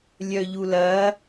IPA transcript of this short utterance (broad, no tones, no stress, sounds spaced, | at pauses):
lʲ œ ʎ u l ɐ